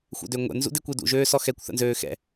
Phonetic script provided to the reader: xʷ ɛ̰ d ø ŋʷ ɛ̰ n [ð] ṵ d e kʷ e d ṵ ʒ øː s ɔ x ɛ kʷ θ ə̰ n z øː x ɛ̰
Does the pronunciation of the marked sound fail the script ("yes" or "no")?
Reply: yes